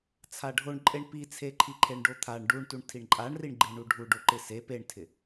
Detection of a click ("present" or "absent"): present